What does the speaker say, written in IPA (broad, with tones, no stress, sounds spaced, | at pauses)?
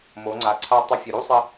m o˩˧ ŋ͡ǀ a˩ ǀʰ a˧ tˤ ɘ˧ fʲ u˩ ɾ u˥ sˤ ɘ˧